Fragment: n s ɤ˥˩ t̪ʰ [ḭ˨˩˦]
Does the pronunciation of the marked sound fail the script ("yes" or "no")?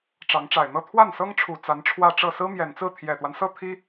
yes